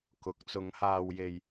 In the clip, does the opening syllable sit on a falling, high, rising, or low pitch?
rising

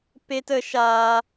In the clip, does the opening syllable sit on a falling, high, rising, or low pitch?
high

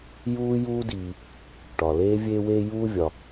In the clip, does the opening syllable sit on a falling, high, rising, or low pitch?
high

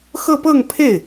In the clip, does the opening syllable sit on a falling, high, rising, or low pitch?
falling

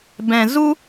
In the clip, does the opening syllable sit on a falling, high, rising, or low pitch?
low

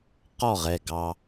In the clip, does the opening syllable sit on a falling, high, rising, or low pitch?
falling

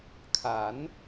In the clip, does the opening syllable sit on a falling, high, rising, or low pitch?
rising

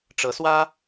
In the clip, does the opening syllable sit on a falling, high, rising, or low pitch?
rising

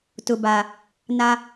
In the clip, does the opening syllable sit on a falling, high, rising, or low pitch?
low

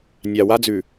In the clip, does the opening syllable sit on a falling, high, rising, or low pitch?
low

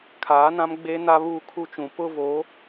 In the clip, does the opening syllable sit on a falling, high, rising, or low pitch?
rising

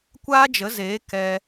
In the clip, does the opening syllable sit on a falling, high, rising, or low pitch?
high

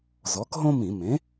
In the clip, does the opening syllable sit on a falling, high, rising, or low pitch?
rising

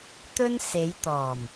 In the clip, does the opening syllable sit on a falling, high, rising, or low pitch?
high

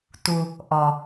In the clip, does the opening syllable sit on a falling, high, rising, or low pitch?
low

